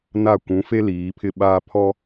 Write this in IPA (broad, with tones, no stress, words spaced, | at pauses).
na˦˨ kʷũ˨˦fe˦ liː˨˦ pʰɪ˦ɓaː˦ pʰɔ˦